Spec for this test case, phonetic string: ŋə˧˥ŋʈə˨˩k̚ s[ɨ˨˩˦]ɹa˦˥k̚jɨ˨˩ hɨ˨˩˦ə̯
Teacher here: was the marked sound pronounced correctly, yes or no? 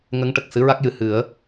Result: no